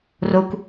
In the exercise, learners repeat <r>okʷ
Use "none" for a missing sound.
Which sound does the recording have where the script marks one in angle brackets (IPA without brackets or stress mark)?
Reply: r